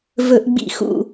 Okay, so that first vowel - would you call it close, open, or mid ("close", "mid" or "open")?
mid